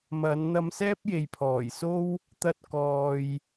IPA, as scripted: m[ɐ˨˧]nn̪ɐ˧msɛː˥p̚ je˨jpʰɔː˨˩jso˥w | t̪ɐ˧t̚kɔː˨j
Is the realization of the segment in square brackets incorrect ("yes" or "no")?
no